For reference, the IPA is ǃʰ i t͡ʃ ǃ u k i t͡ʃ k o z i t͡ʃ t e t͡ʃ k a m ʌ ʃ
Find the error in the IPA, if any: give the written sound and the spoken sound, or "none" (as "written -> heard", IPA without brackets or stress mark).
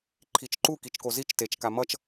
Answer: ʃ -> t͡ʃ